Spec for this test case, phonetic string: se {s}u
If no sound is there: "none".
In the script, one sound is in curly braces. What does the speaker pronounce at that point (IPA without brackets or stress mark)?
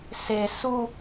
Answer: s